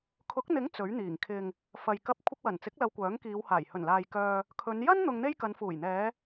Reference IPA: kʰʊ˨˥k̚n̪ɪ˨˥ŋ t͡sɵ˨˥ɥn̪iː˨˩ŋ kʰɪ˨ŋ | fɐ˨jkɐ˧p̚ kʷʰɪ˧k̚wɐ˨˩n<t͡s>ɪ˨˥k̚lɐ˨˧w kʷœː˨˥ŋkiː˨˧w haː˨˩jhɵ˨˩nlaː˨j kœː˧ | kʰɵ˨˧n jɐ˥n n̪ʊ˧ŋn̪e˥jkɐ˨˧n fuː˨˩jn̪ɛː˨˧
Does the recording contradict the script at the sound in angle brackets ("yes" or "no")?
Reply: no